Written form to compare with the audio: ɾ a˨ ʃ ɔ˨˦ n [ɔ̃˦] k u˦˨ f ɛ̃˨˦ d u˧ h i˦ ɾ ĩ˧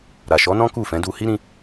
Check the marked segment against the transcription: correct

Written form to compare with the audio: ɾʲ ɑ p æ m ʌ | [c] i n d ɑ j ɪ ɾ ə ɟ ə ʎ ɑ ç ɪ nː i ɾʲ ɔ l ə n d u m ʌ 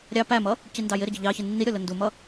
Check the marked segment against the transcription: correct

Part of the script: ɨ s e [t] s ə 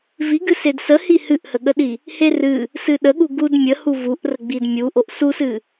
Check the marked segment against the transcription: incorrect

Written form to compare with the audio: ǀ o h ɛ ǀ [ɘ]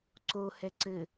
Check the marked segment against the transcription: correct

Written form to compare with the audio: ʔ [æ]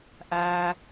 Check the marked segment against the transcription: correct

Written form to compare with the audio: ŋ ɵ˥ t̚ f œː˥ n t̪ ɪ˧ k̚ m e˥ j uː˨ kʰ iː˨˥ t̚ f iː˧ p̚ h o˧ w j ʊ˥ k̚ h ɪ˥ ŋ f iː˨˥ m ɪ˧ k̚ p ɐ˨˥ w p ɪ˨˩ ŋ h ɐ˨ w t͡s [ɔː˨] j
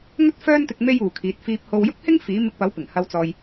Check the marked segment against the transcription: correct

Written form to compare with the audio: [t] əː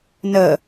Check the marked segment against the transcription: incorrect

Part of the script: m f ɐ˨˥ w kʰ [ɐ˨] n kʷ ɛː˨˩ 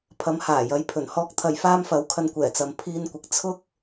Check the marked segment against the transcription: incorrect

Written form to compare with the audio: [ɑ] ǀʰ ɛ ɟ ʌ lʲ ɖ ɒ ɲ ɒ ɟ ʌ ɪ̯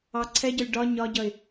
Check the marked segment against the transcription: correct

